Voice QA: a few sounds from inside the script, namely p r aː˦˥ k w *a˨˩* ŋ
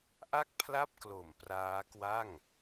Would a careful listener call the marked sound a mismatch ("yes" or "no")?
yes